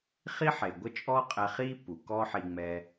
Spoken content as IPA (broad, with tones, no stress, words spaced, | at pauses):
χi˦ħe˨ ɡʷə˦t͡ʃʼɔ˦qʼɛ˧ χi˦ pu˨kɔ˦ħi˧ŋ͡mɛ˧